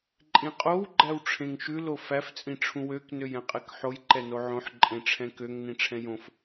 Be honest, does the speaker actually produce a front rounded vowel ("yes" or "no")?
yes